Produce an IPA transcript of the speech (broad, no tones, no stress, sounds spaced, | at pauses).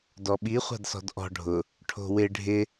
d ɔ ɓ i χʷ a̤ d s ɔ̤ d ʔ ɔ̤ ɖʱ ʊ | ʈʰ o̤ w ɪ ɖʱ ɪ